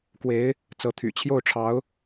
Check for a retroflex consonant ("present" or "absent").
present